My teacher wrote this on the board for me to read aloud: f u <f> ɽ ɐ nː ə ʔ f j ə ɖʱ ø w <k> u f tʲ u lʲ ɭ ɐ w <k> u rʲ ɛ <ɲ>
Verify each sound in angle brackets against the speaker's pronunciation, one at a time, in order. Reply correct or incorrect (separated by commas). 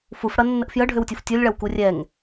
correct, incorrect, correct, incorrect